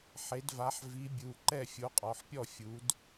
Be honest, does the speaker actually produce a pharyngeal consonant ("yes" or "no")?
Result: yes